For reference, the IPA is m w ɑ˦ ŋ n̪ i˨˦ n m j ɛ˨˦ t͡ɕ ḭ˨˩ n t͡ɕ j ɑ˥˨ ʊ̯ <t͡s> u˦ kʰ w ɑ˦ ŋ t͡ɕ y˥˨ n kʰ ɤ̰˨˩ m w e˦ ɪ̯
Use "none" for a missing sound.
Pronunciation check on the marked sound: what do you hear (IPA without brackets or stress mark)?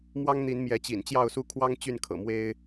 s